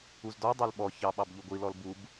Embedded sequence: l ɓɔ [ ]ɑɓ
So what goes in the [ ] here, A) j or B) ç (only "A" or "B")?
B